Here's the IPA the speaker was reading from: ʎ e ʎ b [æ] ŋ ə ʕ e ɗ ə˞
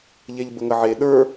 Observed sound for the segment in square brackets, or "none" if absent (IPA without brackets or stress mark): ə